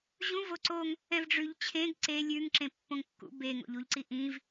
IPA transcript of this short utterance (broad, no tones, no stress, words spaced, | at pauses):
ʑũ voǀoŋ | ɛ̃vɖ͡ʐʉʎ t͡ɕʰẽɡ ǀe lʲʉŋǁẽ pːõŋkːṵ beŋo̰ʎuʎǀi ʔĩv